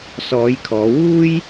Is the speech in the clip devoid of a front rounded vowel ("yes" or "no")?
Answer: yes